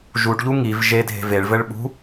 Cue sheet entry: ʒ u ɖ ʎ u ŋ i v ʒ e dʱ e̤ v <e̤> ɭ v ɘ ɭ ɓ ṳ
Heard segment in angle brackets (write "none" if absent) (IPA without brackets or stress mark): e